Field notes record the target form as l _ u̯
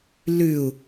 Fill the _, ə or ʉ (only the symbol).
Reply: ʉ